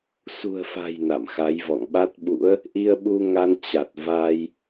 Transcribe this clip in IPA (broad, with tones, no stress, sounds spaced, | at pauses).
s ṳ˨˩ ə̯ f a̤˨˩ j n a̰˧˨ m x a˨˦ j v ɔ̰˧˨ ŋ ɓ a˦˥ t̚ ɓ ṵ˧˥ ə̯ | ʔ i˧ ə̯ ɓ u˧ ŋ a˧ n t͡ɕ a˨˩ t̚ v a˧ j